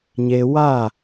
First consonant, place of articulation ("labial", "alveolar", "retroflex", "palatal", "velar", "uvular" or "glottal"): palatal